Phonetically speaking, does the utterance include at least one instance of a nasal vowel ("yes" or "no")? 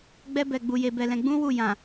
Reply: yes